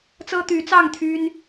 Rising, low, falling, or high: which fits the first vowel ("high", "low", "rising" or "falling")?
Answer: high